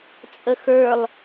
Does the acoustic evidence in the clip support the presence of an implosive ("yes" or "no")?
no